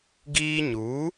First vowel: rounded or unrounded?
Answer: unrounded